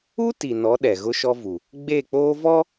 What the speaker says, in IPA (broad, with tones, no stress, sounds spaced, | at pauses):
u˦ t i˨ n ɔ˨˦ ɗ ɛ˨ ɣ ʊ˦ ʃ ɔ˦ v u˨ | ɡ͡b e˦˨ k͡p oː˦ v ɔ˦